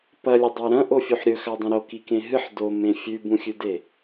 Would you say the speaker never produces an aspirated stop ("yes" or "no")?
yes